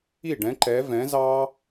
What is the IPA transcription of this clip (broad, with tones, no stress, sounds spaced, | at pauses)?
i˥˨ ɖ ɛ̃˧˥ ǃ ɛ˧˥ v ɛ̃˧˥ z ɑ˥